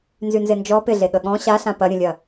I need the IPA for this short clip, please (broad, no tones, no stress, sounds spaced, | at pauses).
n z y n z e n d͡ʒ ɔ p ɪ ɮ e ɠ ə ɠ ɔ̃ ɕ a ɬ ã p ɐ ɾʲ ə̃ lʲ ɐ